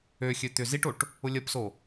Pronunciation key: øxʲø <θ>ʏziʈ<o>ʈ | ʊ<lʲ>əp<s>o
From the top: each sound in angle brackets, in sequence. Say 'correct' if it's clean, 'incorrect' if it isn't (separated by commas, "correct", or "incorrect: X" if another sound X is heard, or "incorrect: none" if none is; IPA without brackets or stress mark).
incorrect: t̪, correct, correct, correct